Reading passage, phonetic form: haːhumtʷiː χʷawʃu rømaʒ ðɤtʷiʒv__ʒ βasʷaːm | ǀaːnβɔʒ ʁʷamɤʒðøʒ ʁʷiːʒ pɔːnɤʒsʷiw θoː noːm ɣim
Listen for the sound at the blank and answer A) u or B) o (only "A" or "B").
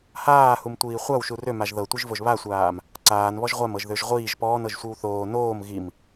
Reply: B